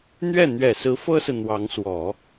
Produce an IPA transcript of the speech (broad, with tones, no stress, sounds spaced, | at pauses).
n̪ ɥ ɛ˥˩ n̪ ɥ ɛ˨˩ s ɹ̩˧˥ f ɤ˥ s ɹ̩˨ n̪ w ɑ˧˥ ŋ s w ɔ˨˩˦